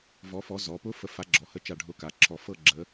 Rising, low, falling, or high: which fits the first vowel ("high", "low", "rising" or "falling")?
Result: rising